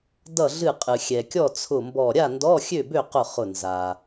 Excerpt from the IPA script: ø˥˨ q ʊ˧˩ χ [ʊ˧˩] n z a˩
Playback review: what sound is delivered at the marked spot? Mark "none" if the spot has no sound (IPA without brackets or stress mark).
ʊ˧˩